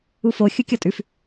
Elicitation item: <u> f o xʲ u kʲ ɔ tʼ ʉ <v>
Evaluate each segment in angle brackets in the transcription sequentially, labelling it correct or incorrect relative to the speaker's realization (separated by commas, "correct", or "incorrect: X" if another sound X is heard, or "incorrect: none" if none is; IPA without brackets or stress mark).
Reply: correct, incorrect: f